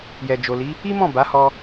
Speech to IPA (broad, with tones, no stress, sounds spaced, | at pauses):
j ɛ˨ d͡ʒ o˨ l i˨˦ | i˦ m ɔ̃˦˨ b a˨˦ h ɔ˧